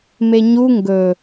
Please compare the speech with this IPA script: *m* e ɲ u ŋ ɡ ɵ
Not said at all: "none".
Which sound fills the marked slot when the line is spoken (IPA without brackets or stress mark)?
m